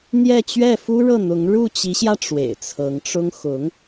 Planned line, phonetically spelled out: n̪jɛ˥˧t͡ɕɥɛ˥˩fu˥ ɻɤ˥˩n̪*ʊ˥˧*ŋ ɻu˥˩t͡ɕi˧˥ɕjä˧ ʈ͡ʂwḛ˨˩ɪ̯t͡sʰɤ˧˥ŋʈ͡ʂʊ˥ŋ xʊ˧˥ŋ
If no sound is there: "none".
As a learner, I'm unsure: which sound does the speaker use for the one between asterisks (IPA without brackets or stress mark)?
ʊ˧˥